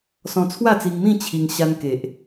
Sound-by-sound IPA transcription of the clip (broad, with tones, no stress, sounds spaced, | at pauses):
s ɔ̃˧ t͡sʰ w a˥˧ t͡s i˧ ŋ m ĩ˥˧ t͡ɕʰ i˧ ŋ ɕ a˧ n k e˨ ʔ